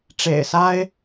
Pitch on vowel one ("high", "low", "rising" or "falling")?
low